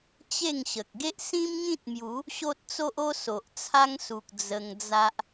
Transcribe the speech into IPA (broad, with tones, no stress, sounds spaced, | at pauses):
t͡ɕ e˥˧ ŋ ɕ ə˨ k̚ ɡ e˦ ʔ s ĩ˦ m ŋ ĩ˦ t̚ m j u˨˦ | ɕ o˦ t̚ t͡s o˦ ʔ o˦ s o˨ ʔ t͡sʰ a˦ ŋ s u˨ k̚ d͡z ə˧ ŋ d͡z a˦ ʔ